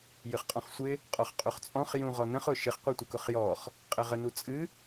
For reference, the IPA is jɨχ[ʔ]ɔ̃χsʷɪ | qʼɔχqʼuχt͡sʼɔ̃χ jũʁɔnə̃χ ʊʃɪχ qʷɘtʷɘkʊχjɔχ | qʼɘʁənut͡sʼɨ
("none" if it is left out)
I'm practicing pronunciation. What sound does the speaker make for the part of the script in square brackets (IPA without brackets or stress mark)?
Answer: qʼ